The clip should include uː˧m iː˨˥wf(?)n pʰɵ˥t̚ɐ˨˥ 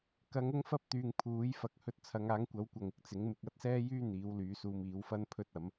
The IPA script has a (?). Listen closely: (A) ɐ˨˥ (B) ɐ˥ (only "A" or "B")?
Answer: B